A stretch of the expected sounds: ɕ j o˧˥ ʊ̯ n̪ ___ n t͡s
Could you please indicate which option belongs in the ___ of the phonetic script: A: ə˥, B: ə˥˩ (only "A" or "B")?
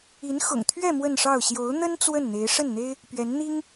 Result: A